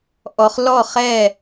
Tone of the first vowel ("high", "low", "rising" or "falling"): low